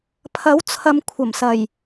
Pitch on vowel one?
rising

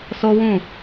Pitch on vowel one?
high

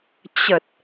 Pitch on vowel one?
low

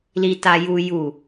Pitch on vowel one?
low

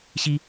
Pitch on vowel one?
high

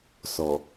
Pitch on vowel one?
low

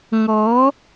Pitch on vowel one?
rising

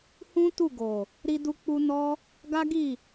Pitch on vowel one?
high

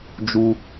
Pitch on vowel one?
high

